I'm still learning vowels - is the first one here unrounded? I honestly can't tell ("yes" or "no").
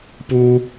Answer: no